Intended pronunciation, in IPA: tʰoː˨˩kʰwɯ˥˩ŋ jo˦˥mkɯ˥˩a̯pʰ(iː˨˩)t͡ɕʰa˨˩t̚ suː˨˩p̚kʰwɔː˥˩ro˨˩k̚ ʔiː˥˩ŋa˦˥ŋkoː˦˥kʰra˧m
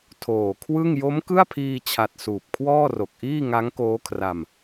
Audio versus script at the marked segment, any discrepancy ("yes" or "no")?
yes